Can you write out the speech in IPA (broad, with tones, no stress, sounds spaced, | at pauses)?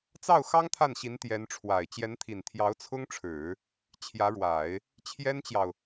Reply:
t͡s ɑ˥˩ ʊ̯ x ɑ˥ ŋ t̪ʰ a˥˩ n ɕ i˧˥ n t̪ j ɛ˧˥ n ʈ͡ʂʰ w a˨˩ ɪ̯ t͡ɕ j ɛ˧˥ n t̪ʰ i˨˩ n t̪ʰ j ɑ˧˥ ʊ̯ t͡sʰ ʊ˥ ŋ ʈ͡ʂʰ ɻ̩˨˩˦ | t͡ɕʰ j ä˧˥ ɻ w a˨˩˦ ɪ̯ | t͡ɕʰ j ɛ˥ n t͡ɕ j ɑ˨ ʊ̯